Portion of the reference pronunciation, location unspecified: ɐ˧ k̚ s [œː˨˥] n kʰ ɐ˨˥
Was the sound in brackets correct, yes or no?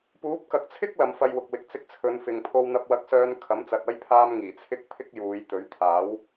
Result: no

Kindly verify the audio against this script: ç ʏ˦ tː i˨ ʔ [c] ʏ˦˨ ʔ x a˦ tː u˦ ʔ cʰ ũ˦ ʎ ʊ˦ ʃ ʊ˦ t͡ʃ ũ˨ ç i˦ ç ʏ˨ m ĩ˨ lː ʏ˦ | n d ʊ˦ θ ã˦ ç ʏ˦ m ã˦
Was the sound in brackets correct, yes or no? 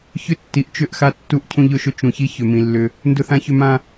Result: no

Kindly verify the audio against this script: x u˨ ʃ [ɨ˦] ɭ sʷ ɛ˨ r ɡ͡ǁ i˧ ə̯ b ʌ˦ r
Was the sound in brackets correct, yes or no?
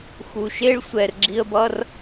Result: no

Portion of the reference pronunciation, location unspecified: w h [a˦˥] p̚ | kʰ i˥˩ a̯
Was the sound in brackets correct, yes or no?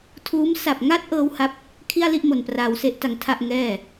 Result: yes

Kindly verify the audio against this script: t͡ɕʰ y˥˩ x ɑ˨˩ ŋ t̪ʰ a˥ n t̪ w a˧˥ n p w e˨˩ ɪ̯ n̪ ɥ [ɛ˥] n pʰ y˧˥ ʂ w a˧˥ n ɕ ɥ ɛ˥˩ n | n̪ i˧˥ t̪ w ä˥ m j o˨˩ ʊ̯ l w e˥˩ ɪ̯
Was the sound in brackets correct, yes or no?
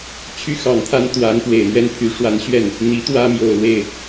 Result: yes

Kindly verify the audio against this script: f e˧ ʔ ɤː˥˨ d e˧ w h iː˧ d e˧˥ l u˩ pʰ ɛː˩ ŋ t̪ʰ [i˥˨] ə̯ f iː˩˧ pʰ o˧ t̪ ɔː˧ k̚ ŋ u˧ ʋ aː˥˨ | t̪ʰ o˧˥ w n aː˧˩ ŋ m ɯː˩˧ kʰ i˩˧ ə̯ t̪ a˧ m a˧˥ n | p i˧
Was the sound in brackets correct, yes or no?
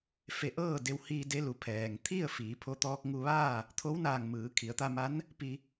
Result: yes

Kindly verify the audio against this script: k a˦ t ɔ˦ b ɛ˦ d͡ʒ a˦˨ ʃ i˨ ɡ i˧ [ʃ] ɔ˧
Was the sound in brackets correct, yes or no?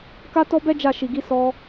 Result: no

